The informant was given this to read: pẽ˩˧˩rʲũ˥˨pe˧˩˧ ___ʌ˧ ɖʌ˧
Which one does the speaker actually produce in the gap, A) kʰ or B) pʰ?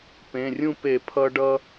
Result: B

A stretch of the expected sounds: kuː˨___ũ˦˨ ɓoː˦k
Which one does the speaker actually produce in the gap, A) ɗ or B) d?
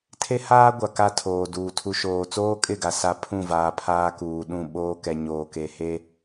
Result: A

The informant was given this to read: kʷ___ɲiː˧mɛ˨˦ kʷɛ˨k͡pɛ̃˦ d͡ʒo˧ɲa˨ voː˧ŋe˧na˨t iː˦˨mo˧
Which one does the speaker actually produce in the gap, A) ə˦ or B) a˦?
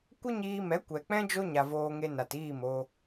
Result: A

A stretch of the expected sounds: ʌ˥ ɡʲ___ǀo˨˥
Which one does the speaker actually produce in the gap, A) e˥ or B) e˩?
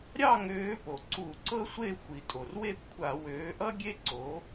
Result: A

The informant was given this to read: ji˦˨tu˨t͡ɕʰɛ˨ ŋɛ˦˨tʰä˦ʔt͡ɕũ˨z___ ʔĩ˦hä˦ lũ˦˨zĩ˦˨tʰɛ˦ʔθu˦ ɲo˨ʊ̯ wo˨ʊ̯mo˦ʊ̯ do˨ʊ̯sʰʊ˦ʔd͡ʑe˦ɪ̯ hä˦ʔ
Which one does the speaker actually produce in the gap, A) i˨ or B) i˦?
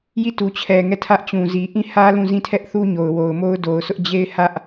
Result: A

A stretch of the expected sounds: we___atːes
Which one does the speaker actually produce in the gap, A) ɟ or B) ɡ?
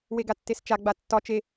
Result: B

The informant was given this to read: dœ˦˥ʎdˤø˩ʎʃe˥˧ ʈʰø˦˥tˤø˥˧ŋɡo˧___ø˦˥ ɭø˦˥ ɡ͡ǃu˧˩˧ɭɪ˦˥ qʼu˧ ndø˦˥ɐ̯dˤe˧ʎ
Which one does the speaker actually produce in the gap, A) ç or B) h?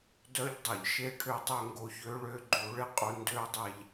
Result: A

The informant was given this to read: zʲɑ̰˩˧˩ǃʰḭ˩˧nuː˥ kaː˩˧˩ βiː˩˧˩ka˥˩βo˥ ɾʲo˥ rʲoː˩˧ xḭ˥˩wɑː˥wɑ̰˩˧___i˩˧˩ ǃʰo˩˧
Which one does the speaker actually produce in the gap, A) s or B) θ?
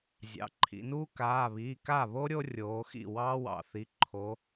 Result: B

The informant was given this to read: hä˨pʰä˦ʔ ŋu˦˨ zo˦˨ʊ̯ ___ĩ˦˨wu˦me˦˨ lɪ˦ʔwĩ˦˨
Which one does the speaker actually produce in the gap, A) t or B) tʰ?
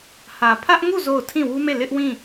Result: B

